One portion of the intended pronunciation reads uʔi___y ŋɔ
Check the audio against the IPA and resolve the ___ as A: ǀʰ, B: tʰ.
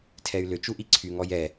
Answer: A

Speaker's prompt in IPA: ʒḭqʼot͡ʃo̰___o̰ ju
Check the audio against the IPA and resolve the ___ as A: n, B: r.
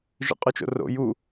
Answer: B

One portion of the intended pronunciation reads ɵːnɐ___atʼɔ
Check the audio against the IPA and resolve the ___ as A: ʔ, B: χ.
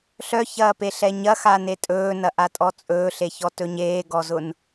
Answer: A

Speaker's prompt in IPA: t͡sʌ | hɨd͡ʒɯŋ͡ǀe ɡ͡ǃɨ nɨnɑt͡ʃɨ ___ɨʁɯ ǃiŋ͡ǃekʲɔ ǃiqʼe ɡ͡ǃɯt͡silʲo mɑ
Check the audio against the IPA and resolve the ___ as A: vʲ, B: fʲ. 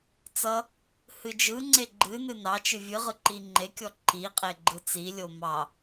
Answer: A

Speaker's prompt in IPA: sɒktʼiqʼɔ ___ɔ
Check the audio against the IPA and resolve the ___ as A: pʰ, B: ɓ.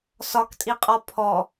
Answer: A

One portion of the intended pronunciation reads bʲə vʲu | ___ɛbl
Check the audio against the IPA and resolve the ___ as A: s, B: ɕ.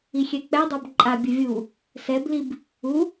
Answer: A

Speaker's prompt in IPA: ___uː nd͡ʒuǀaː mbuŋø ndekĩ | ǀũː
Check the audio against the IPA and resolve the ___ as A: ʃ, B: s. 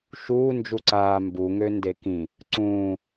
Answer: A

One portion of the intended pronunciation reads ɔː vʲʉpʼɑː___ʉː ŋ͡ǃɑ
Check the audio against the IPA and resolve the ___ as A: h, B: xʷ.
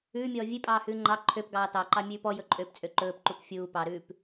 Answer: A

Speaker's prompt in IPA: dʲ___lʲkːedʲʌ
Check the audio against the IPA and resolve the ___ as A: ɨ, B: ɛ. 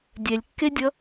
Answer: B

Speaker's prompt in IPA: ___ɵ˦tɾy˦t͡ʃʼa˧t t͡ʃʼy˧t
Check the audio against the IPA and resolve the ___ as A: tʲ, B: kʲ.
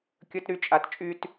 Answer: B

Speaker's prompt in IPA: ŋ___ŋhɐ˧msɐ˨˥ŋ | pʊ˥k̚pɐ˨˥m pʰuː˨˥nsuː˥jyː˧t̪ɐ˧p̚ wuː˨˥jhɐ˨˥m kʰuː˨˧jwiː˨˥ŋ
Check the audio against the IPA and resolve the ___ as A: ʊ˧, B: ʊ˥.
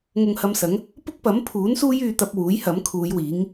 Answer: A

